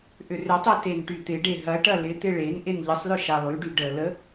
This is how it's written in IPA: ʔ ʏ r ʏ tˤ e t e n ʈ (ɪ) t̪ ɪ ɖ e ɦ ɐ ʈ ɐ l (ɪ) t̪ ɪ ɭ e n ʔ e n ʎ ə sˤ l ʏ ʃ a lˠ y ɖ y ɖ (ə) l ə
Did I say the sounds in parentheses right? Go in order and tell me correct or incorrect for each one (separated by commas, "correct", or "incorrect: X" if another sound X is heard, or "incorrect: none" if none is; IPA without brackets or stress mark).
incorrect: y, correct, correct